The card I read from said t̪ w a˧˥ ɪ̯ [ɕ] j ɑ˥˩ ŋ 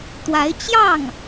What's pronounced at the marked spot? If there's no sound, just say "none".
t͡ɕ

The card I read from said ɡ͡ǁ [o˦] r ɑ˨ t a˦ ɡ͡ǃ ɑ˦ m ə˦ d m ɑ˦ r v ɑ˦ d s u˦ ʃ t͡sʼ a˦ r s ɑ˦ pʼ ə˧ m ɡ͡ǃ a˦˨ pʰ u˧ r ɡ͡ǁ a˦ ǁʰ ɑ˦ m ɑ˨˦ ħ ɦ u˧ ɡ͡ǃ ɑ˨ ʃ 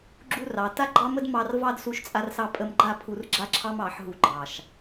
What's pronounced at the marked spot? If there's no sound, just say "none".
u˦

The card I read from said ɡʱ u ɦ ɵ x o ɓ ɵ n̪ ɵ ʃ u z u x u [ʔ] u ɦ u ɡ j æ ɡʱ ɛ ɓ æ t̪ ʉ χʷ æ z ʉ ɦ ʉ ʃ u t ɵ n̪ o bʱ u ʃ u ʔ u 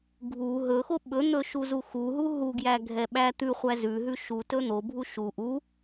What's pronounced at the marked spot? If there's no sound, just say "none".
ɦ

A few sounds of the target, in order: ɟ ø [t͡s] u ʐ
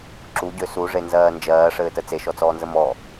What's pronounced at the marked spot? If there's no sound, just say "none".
s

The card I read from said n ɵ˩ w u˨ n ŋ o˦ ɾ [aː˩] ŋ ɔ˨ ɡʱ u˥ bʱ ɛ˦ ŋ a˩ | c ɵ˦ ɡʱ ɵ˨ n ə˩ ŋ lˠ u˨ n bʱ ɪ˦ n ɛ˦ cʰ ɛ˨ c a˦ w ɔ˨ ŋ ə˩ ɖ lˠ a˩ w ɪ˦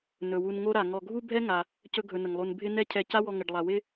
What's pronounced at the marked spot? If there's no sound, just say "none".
a˩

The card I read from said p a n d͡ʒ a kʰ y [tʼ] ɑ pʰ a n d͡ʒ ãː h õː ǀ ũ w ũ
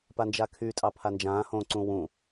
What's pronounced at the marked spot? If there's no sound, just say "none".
tʼ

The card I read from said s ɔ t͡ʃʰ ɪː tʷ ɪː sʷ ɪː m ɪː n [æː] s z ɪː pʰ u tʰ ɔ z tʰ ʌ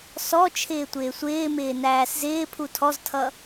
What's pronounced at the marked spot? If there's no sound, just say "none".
æː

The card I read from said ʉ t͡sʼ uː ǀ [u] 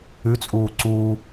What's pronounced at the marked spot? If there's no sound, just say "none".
uː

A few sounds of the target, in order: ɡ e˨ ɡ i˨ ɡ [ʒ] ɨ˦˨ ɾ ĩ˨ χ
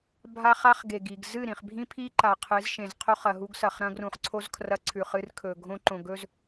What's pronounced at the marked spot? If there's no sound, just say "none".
z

